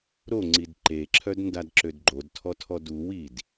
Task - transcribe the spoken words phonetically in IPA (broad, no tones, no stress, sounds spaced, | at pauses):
ɾ o ŋ͡ǀ i d ǃ e ǁʰ œ d n d a d ǁ ø d ɡ͡ǃ o d tʰ ɔ tʰ ɔ d u w i d